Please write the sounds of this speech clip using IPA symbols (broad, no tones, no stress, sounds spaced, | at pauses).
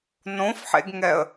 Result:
n õ f ħ ḛ ɡ ŋ ɛ ə̯